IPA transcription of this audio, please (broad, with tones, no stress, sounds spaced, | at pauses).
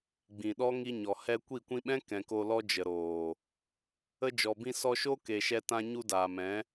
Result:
ɡ͡b ĩ˨ ɗ ɔ˦ ŋ i˧ ɲ ɔ˨ h ɛ˧ kʷ i˦˨ kʷ ĩ˧ ɓ ɛ̃˦ k ɛ̃˨ k o˧ l ɔ˦ d͡ʒ ə˨ ɾ oː˨ | ə˧ d͡ʒ ɔ˨ b ĩ˧ s ɔ˧ ʃ o˦ k e˨ ʃ ɛ˧ t ã˧ ɲ u˧ d aː˨ m ɛ̃˨˦